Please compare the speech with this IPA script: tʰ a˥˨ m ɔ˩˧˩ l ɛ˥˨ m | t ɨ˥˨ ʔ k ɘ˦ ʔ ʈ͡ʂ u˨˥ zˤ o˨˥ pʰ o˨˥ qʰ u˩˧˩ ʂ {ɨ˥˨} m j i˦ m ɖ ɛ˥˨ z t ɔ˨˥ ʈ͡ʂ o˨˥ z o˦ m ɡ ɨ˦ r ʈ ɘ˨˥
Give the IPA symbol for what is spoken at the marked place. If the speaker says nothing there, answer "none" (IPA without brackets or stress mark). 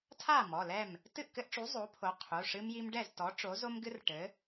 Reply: ɨ˦